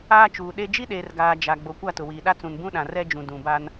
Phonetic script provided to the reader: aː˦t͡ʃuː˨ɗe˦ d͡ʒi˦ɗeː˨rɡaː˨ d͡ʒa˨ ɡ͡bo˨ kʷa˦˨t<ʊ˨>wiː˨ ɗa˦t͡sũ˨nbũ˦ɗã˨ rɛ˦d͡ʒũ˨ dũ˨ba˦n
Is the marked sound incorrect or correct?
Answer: correct